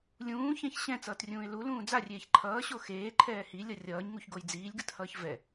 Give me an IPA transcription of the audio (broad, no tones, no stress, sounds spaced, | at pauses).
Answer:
lʲ ũː ç ɛ̃ ç ɕ ɛ̃ t͡s ʌː t rʲ ũː ɪ̯ l u l ũː d͡z a rʲ eː ç ǃʰ ʌː ɕ o x eː ǃʰ ɛː h i lʲ ʌ rʲ ʌː ɲ ŋ u ç ɡ o j d͡z iː lʲ ɡ ɯ t h ʌː ç v ɛ